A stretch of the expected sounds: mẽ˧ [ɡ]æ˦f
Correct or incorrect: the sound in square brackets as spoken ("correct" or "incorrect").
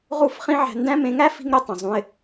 incorrect